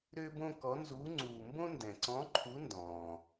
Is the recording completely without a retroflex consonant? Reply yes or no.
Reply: yes